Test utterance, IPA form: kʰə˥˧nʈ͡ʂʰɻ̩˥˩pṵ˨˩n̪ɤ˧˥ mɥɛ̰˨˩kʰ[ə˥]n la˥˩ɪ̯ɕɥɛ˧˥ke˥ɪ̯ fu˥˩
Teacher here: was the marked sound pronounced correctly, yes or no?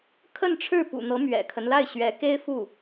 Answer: no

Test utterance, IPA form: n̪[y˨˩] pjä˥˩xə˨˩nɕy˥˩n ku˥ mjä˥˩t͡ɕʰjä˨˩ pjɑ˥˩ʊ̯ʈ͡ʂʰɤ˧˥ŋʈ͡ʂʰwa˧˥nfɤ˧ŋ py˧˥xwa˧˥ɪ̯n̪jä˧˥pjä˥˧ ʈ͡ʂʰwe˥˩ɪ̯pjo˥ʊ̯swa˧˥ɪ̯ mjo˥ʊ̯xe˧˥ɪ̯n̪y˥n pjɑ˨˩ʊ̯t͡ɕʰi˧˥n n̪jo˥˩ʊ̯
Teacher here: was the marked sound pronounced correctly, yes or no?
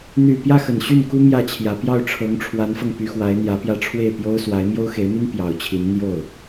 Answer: yes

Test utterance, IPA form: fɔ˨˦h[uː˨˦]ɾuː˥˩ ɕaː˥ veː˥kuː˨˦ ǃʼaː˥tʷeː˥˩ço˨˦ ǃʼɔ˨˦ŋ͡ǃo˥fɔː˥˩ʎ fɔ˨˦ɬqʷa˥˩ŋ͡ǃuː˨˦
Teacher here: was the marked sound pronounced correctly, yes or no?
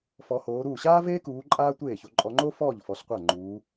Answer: no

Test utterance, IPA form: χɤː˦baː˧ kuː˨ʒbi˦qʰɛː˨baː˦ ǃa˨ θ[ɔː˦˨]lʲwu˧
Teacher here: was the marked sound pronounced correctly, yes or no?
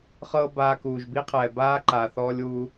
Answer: no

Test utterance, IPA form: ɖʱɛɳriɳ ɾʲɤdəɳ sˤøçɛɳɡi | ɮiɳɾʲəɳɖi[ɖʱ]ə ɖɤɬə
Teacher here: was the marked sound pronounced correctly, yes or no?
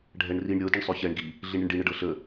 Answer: no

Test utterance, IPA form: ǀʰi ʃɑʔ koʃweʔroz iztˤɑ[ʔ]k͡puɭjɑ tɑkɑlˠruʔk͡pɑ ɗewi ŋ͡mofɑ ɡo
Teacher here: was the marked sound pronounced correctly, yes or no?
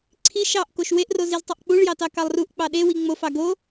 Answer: yes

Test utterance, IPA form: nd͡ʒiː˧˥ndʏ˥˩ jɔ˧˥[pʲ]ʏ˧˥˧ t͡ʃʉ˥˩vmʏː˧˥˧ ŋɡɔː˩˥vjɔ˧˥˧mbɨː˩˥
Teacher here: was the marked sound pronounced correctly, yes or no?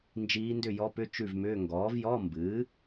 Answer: no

